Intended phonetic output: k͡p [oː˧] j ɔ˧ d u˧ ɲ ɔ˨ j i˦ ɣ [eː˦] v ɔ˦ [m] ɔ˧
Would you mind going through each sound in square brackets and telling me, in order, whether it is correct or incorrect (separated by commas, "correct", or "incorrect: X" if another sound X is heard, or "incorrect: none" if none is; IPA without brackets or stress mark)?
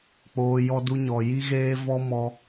correct, correct, correct